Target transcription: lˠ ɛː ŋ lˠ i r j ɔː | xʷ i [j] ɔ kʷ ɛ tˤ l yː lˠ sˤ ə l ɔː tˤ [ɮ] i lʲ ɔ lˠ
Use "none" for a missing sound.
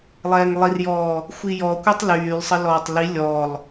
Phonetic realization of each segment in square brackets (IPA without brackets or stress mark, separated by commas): j, l